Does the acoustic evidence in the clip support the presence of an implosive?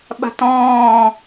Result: yes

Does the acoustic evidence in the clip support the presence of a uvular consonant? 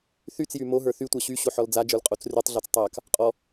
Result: yes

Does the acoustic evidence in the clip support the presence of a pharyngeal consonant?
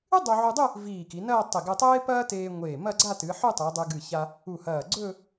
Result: yes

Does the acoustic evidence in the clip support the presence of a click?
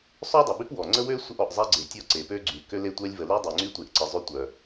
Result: yes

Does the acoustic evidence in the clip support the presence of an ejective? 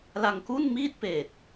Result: no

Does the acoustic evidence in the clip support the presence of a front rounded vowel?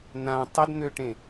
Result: yes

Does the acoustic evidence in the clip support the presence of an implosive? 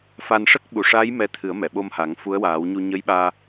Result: yes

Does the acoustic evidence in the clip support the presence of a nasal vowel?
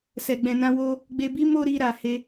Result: yes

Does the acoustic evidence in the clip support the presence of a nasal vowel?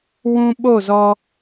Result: yes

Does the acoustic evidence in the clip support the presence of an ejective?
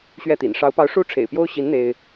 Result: no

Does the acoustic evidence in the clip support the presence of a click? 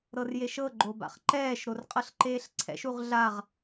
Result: yes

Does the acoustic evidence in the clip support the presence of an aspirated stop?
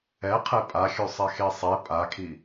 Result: yes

